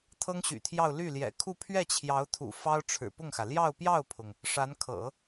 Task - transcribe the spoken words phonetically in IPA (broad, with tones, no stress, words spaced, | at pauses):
t̪ʰɤ˥ŋɕy̰˨˩t̪ʰjɑ˥˧ʊ̯ ly˥˩ljɛ̰˨˩kʰu˥˧ pʰɥɛ˥˩t͡ɕʰjɑ˧˥ʊ̯t̪ʰṵ˨˩ fɑ˥ʊ̯ ʈ͡ʂʰɻ̩˨˩pʊ˥˩ŋxä˩ ljɑ˥˧ʊ̯pjɑ˥˩ʊ̯pʰʊ˩ŋ | ʂa˧˥nkʰɤ̰˨˩˦